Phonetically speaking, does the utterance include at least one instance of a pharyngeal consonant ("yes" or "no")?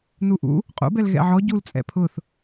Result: yes